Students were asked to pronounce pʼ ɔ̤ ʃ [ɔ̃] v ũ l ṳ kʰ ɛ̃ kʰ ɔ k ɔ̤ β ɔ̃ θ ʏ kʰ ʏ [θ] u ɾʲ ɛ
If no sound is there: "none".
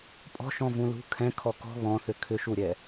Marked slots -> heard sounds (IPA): ɔ̃, ʃ

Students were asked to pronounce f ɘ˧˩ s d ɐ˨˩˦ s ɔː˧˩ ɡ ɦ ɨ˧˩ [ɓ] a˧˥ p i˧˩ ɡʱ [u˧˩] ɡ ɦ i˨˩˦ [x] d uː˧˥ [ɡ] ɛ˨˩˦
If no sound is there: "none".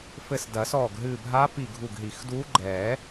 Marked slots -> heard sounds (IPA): bʱ, u˧˩, x, ɡ͡ǃ

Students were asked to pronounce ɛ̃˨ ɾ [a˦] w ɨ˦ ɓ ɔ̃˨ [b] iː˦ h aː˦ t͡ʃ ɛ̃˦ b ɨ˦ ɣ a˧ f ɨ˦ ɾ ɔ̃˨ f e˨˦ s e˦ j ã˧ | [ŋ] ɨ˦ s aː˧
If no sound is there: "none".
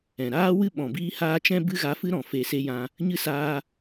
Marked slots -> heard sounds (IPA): aː˦, b, ɲ

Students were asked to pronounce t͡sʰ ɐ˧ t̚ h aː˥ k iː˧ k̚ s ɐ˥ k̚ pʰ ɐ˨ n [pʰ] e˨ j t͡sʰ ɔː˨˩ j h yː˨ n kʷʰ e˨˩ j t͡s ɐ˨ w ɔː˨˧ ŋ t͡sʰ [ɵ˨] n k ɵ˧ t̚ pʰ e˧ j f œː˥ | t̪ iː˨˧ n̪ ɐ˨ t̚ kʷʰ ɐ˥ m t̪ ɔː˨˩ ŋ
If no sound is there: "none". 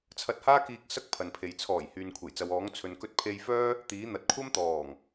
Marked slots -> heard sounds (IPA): pʰ, ɵ˨

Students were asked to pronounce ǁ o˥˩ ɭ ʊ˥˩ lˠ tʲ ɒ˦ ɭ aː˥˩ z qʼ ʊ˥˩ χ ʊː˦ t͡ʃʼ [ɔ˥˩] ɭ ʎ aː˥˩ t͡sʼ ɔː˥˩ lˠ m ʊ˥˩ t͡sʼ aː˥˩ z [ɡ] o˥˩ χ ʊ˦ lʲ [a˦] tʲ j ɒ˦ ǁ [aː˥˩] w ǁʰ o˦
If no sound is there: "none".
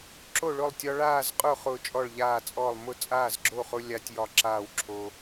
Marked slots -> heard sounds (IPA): ɔ˥˩, ɡ͡ǁ, a˦, aː˥˩

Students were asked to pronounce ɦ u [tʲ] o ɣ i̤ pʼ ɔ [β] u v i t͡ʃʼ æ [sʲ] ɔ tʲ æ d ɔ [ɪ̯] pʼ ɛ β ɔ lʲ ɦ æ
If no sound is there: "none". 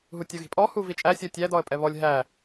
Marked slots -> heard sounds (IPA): tʲ, h, sʲ, ə̯

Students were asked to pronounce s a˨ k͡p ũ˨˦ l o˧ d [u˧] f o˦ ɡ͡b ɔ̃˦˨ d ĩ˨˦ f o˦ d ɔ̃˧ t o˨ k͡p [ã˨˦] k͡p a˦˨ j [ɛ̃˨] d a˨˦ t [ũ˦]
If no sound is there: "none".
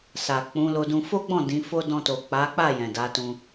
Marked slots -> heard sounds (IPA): ũ˧, a˨˦, ɛ̃˨, ũ˧

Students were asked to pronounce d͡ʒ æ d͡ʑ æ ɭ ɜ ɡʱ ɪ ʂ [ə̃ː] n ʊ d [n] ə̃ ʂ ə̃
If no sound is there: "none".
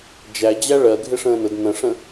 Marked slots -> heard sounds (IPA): ə̃ː, n

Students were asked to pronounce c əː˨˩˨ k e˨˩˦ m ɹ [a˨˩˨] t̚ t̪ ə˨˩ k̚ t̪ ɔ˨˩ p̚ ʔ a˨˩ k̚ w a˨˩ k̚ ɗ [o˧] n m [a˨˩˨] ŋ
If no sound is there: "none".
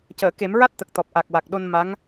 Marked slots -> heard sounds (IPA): a˦˥, o˧, a˧˥

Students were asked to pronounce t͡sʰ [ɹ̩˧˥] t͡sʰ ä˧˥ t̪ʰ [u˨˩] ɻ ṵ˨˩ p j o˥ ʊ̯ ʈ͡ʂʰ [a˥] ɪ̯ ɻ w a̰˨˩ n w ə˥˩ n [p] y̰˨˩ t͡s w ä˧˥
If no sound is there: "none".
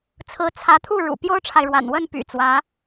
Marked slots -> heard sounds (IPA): ɹ̩˧˥, u˥˩, a˨, p

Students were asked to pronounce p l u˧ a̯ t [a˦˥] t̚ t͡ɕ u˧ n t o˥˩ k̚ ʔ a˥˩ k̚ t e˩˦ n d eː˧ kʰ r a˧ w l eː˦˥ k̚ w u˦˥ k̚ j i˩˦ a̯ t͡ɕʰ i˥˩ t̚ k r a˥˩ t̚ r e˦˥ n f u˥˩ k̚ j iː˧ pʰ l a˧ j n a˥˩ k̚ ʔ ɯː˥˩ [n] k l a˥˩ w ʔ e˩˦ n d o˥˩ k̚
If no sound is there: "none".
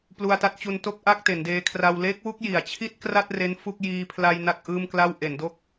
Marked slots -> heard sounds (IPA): a˦˥, m

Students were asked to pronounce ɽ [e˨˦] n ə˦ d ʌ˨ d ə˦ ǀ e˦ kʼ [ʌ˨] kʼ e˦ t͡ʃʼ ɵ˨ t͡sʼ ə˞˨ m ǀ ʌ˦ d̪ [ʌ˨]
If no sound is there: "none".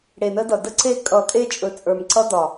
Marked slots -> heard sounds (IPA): e˨, ʌ˨, ɒ˨

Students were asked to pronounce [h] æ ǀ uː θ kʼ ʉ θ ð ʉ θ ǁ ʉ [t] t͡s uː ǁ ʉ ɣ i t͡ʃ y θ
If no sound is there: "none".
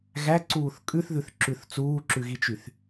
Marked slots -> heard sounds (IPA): ɣ, θ

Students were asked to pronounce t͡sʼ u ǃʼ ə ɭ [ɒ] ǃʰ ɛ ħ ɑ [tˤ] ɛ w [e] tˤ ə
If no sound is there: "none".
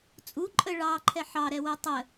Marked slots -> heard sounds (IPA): ɑ, ɾ, e

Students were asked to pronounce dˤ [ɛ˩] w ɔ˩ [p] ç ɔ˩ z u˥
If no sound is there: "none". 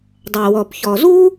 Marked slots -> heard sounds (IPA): ɛ˩, p

